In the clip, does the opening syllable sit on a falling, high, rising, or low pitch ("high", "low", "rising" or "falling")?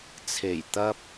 low